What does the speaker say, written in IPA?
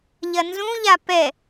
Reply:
ʎɐnzũʎa pɛ

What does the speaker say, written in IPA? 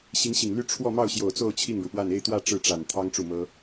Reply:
ɕi˧˥ŋɕi˨˩ŋly˥˧ ʈ͡ʂʰwɔ˥˧ mɑ˥˩ʊ̯ɕjo˨˩ʊ̯t͡so˥˧ʊ̯ t͡ɕʰi˥˩ŋɻu˩pwa˥˧n e˥˧ɪ̯t̪wä˥˧ ʈ͡ʂɻ̩˥˩ʈ͡ʂa˨˩nt̪ʰɑ˥ŋ ʈ͡ʂu˥˩mɤ˥

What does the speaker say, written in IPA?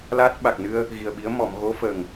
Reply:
laː˦˥t̚ ɓa˨˩k̚nɨ˧ə̯ | ɣi˨˩ə̯ɓi˧˥ə̯ mɔ˨˩˨mɣo˧˥ fə˨˩ŋ

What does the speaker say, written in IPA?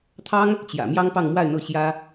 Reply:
t̪ʰɑ˥ŋ | t͡ɕjä̰˨˩ mjɑ˥ŋpɑ˥˧ŋmwa˥˧ɪ̯n̪ɤ˥˩ ɕjä˥

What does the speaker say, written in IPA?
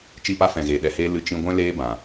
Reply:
t͡ʃi˦˨pa˦fɛ̃˨ɣeː˨ ɗɛ˨heː˧ lɨ˧ t͡ʃĩ˧ ɡʷɛ̃˦ leː˦bã˨

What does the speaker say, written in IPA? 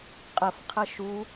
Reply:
qʼəfqʰə ʃu

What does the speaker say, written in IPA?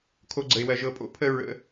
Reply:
kʰo˧ɡ͡ǀə˨ɪ̯wɜ˨ ʒɤ˨pʼo̰˨˦pʰə˧ ɹə̰˨˦

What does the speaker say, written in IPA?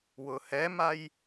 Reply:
wʊhɛmaj

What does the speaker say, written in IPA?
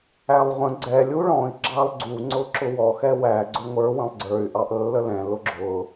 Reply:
ælˠʁʷə̃ ɡ͡ǀɛlʲ uɭɔ̃i̯ ɡ͡ǁɑlˠɡ͡ǀu ŋ͡ǀʊǁʊwɔ xɛwæ ɡ͡ǀʊŋʷə˞ wə̃lˠɡ͡ǀə˞y̯ ʔɑʔlːəlɛ̃ lʊɡ͡ǁʊ

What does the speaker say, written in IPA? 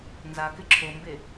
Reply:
nzakɪ ǁʰombe

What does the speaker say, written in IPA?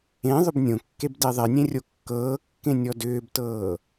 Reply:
ẽ ðˤʏbnʲõkːeb deðˤenʲẽ rʲokːɤːkːẽ nʲɔdʏːbtɤː

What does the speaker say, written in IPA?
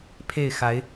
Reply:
pʰe˥˩ɪ̯xa˧˥ɪ̯

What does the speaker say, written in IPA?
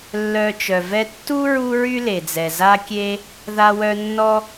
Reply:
lːœ˧t͡ʃœ˨vɛ˦ tːu˦ ɹu˦ɹy˦le˨d͡zɛ˨ za˦kʲe˦ | ða˧wœ˧ nːɔ˧

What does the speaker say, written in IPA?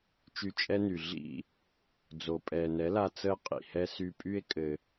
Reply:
t͡ʃy˧t͡ʃʼɛ˦ny˨ ɮḭ˦˨ | d͡zo˨pʼɛː˨nɛ˨˦la˧ t͡səː˦qʼḭ˨hɛ˦ sy˧pʼy˦e̯ kʼɘ˧

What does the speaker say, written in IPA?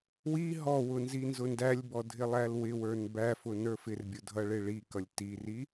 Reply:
wi ɦɔwʊ nzinzʊndælʲbɔ dʱɪlˠælwɪwə˞n bæfʊ nə˞fɪrbʲʊ dʱʌɭɪɭikʌlʲ tiri

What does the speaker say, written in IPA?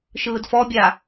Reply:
ʃɯːdfɔbʲa

